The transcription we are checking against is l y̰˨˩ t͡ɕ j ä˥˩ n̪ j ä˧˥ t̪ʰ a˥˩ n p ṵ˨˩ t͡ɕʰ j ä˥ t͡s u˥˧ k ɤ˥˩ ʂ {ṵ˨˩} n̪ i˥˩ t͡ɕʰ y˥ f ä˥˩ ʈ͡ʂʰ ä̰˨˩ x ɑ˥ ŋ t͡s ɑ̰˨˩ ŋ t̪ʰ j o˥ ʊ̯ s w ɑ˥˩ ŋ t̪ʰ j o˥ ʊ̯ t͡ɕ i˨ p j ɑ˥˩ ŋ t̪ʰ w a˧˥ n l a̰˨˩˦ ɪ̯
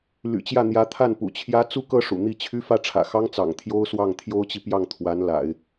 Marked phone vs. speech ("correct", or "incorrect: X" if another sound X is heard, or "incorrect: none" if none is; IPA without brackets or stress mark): correct